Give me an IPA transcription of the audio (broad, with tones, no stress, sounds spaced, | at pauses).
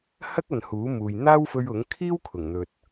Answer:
h ɐ˥ k̚ ɐ˨ n h uː˨˥ m uː˨ j n̪ aː˥ w f ɵ˧ ɥ ʊ˨˥ ŋ kʰ iː˥ w kʰ ʊ˨˩ ŋ n̪ ɵ˨ t̚